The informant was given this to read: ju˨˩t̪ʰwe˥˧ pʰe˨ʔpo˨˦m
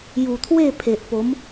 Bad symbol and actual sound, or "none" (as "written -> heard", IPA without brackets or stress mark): none